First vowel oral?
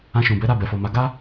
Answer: no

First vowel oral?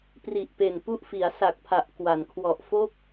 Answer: yes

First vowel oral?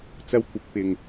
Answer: yes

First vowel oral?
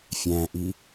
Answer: no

